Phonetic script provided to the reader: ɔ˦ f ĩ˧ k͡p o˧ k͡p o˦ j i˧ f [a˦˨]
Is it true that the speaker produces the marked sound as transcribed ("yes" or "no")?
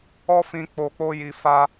no